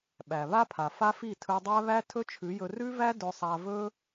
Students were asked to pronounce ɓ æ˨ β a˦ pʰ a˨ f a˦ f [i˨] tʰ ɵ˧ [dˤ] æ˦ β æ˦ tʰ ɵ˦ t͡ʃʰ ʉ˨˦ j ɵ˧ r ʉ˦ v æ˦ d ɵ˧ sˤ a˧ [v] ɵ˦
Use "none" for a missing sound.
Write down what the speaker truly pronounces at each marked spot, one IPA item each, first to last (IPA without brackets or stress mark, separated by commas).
i˦˨, dˤ, v